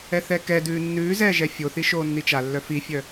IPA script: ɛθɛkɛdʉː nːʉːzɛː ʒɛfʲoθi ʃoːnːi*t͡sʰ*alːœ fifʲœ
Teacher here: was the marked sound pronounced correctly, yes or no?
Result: no